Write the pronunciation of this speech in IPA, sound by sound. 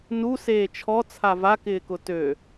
n u s eː t͡ʃʰ ɔ t͡sʰ a v a k ɪː k ʊ t ø

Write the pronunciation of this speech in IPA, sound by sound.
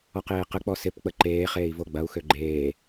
ɔ q eː q ə k͡p ɔ s ɪ p k͡p ə ǃ eː χ eː i̯ v o ɡ͡b ɐ u̯ x ø ɡ͡ǃ eː

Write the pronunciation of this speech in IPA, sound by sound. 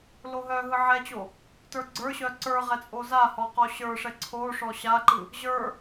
l o ɦ œ ɦ ɯ ʕ ɛ t͡ɕ o | t ə˞ ɡ͡ǀ ə˞ ɕ œ ǀ ə˞ ʁ ɛ t͡sʼ o z a h ɔ q ɔ ɕ ə˞ ʂ ɛ ǀʰ o ʂ ɔ ɕ a ǃ ɯ | ʑ ə˞

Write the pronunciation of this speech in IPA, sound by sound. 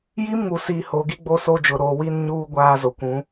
j i˦ m ŋ u˨ s iː˨ h o˨ ɡ i˦ ɡ͡b o˦ s o˦ d͡ʒ ʊ˨ ɾ oː˨ w iː˦ n ɲ uː˦ ɡʷ aː˦ z o˨ kʷ ũ˨˦

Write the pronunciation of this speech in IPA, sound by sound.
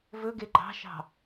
v ɵ ɡ e ɡ͡ǃ ɑ̤ ʃ ɑ̤

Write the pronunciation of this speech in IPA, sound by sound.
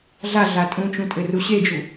ɮ a ɮ a tʼ ũ t͡ʃ ũ tʼ ɘ r u ɕ e d͡ʒ u

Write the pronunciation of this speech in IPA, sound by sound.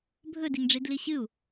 bʱ ɵ d i ŋ ɖ͡ʐ i d l i ɕ ɨ u̯

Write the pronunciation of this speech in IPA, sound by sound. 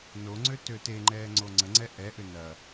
n o ŋ͡ǀ ø t ø t e ŋ͡ǃ ɛː ŋ͡ǀ o ŋ͡ǀ ə ŋ͡ǀ ɛ ʔ ɛ ʔ ʏ n ɐ

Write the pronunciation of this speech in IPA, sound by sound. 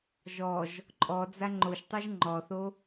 ʒ ɔ ʒ | ǃʼ ɔ d͡z a ŋ͡ǃ o ʃ tˤ u ʒ ŋ͡ǃ ɔ θ o

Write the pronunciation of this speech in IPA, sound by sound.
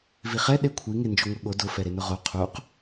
v i χ ɛ ɗ e kʷʰ i ŋ e n d͡ʒ o ŋʷ e ɠ o d ʊ f ɛ ɾ e n ʊ ʁ o qʰ u q

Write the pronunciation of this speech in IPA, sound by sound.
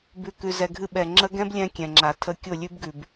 b ʉ˨ k ʉ˨ z ɛ˨ ɡʱ ɨ˧ ɓ ɛ˨ ŋ͡ǁ ə˦ ɡ ɛ̃˦ b lʲ ɛ̃˧ kʲ ɛ̃˨ ŋ͡ǁ a˨ tʰ ə˧ kʲ ʊ˦˨ lʲ ʉ˦ b ɡ ʉ˨ b

